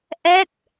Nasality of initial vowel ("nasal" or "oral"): oral